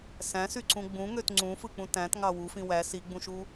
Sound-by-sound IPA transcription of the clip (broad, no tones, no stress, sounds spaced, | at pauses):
s æ̃ s y ǀ ũ ɡ͡b ũ ŋ ø t ŋ͡ǀ ũ f ɯ k͡p ũ t æ̃ t ŋ ɑ w u f ĩ w æ s i ɡ͡b ũ ʃ u